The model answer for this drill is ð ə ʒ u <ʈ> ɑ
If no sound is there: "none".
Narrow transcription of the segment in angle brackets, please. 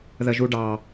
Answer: ɖ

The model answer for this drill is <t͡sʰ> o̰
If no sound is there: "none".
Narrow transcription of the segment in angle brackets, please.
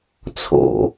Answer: t͡sʰ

